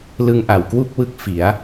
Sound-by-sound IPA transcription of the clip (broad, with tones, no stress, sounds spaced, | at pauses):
l ɯ˧ ŋ ʔ a˩˦ w k w u˥˩ k̚ w ɯ˥˩ k̚ f i˩˦ a̯